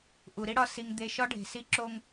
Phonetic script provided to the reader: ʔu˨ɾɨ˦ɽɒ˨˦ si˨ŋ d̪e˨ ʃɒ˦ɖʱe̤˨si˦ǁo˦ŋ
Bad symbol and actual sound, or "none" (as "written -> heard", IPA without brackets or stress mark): ɨ˦ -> i˦